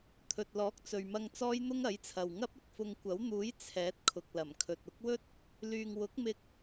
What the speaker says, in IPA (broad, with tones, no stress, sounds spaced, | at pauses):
t̪ʰ ɵ˨ t̚ l ɔː˨˥ k̚ t͡s ɵ˨ ɥ m ɐ˧ ŋ t͡s ɔː˥ j n̪ ʊ˥ ŋ ɐ˨˥ j t͡sʰ ɐ˨ w ŋ ɐ˥ p̚ ɪ˨ k̚ f ʊ˧ ŋ kʷ ɐ˨˥ w n̪ uː˨˥ j t͡sʰ ɛː˨˥ t̚ kʰ ʊ˨ k̚ l ɐ˨˩ m kʰ ɵ˨ t̚ ʊ˨˥ k̚ w ɵ˥ t̚ | l yː˧ ŋ w ʊ˨˥ k̚ m ɪ˧ k̚